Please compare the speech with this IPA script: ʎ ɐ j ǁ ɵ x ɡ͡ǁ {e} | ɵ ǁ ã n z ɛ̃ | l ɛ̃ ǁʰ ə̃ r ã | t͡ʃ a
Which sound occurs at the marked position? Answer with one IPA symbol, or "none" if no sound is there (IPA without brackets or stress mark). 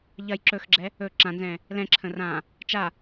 ɛ